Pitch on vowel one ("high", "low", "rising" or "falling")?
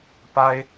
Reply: high